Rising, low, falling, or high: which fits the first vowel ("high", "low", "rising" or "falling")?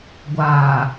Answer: low